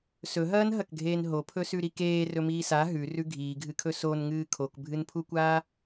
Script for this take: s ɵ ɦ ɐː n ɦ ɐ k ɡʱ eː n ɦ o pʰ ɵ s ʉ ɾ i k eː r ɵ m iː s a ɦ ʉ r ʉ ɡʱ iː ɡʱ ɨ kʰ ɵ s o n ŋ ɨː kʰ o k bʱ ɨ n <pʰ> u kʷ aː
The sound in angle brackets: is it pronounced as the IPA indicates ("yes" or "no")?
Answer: yes